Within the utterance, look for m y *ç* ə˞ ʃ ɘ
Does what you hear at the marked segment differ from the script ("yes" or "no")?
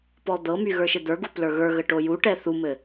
yes